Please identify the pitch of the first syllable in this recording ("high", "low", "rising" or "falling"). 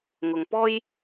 low